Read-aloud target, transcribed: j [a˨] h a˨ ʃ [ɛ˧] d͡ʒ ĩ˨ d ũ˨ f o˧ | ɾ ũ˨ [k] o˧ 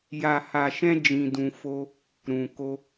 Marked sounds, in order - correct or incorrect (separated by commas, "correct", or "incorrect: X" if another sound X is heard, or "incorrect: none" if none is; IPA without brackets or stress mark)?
correct, incorrect: ɛ̃˧, correct